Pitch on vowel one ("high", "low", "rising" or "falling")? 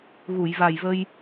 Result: low